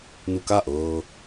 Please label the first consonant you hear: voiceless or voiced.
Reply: voiced